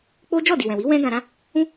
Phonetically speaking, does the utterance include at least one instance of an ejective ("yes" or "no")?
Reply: no